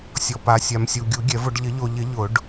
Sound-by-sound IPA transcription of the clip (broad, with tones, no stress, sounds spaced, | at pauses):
sʲ ɔ˨ p a˨ sʲ a˨ m sʲ u˨ ɡʲ u˨˩˦ ɡʲ ɛ˨˩˦ v ʊ˨˩˦ ɖ ʎ ɪ˨˩˦ ʎ o˨ ʎ ɪ˨˩˦ ʎ ʊ˨˩˦ ɖ